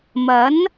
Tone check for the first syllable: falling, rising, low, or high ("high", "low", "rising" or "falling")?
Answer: rising